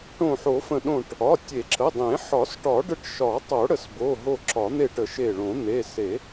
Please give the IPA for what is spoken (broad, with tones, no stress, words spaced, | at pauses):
ʈõ˧˩ħo˨˩˦fə̃˧˩ ɗõ˧˩ʈ | ɒ˩˧˩tʲe˨˩˦ǁə˩˧˩dˤẽ˨˩˦ ħɒ˨˩˦sʈɒ˨˩˦ɖə˧˩ʈ ʃɒ˨˩˦tˤo˨˩˦ ɽə˧˩s bo˩˧˩ ɦo˧˩ ǁɒ˨˩˦n̪e˧˩ʈə˨˩˦ ʃe˧˩ ɭõ˨˩˦n̪e˩˧˩ se˨˩˦